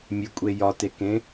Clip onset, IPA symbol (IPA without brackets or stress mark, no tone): mʲ